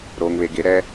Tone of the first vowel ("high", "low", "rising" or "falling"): low